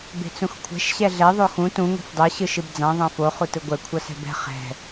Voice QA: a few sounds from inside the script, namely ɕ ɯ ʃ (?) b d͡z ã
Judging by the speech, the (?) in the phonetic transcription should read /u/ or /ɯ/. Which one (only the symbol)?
ɯ